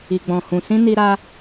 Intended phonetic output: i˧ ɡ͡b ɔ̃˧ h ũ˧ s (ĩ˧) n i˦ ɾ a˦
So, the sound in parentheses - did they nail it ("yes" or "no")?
no